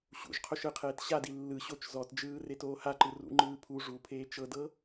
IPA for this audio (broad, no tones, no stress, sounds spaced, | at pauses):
ɕ ṵ ʒ qʰ o ʃ ɯ qʰ eː t ɕ a d i lː ɯ ɕ o t͡ʃ z ɔ t d͡ʒ ɯː r e t oː h a ǃ ɯ r ṵ ŋ͡ǃ ɯː pʰ u ʐ u pʰ eː t͡ʃ ɤ d ɤ